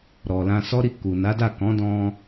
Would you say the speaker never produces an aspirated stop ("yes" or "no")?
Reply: yes